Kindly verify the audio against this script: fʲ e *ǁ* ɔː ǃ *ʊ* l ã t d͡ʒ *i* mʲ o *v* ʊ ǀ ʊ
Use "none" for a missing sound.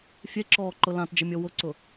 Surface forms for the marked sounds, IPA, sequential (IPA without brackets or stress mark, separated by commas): ǁ, ʊ, ɪ, w